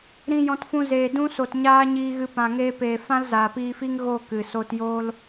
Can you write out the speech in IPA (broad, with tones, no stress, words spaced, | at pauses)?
ɾĩ˧ jɔ̃˧tfũ˧ zeː˨dũ˧so˨t ɲaː˦ɲiː˧ɣɨ˧ pã˨ŋeː˧peː˨ fã˦lzaː˨piː˧fi˦ŋ ɣo˦˨ kɨ˨ so˧tjoː˦l